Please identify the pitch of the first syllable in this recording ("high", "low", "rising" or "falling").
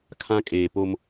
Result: high